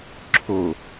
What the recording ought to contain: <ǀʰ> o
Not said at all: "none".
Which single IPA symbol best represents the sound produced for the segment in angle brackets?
ǁʰ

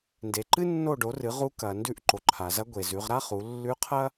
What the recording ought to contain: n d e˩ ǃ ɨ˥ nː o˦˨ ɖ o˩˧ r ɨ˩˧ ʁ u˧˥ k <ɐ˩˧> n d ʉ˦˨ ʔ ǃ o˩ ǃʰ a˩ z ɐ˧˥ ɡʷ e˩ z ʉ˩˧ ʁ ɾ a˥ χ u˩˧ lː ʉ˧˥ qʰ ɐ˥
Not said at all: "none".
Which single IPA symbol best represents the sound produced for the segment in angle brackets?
ɐ˩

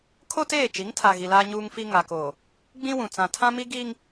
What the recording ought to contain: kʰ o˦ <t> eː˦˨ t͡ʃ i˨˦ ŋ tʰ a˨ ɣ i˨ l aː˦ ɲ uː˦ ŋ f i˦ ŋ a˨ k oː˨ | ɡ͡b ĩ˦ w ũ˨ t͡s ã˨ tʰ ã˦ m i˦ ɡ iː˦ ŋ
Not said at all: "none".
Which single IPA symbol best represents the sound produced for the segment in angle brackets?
t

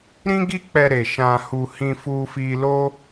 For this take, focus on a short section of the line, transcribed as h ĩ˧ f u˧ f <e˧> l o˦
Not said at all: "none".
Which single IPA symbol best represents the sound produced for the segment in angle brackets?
i˧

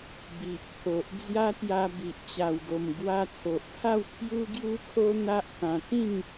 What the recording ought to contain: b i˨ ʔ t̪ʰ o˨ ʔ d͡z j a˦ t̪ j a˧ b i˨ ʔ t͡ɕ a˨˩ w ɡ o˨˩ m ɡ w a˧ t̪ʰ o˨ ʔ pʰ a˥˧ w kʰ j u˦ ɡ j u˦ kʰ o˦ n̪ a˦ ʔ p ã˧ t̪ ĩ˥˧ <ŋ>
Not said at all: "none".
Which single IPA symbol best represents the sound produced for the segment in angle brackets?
ŋ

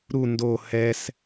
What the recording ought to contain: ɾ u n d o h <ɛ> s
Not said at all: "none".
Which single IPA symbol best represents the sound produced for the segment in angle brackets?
ɛ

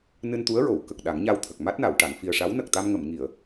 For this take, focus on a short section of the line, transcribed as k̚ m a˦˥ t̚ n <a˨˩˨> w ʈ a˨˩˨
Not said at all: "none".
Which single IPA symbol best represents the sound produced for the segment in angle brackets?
a˨˩˨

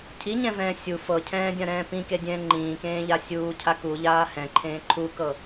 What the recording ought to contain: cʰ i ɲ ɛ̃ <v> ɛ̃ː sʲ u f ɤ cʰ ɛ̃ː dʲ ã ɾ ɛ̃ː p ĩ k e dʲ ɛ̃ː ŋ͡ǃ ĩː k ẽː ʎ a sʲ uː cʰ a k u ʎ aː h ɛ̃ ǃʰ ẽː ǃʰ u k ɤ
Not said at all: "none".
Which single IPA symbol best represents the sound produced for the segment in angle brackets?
v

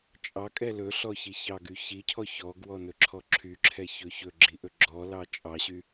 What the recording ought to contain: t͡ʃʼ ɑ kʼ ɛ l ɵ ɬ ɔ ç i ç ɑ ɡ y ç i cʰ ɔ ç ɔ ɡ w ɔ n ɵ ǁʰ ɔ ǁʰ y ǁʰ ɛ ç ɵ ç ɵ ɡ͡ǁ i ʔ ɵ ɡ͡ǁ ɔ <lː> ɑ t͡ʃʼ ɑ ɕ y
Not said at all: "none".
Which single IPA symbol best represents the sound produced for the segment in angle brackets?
l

